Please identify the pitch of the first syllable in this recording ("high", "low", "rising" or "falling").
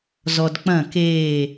low